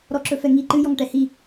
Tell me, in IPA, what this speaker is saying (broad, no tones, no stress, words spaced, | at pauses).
ɾɔǁɵfɛŋi ǃɨ jɔŋʈɛhi